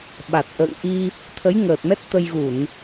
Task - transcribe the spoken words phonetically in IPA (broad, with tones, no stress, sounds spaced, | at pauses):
ɓ a˨˩ t̚ ʔ ə̰ː˧˨ ŋ ʔ i˧ | t̪ʰ ə˨˦ j ŋ əː˨˩ t̚ m ɛ˦˥ t̚ t̪ ə˧ j ɣ u˧˩˨ n